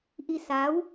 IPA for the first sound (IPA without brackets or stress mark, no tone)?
ʔ